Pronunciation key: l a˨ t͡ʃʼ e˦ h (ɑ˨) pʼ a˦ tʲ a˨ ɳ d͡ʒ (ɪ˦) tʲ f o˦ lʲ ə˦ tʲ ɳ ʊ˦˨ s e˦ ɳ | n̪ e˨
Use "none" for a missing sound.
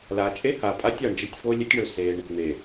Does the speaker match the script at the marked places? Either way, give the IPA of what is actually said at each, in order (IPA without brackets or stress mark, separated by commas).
a˨, ə˦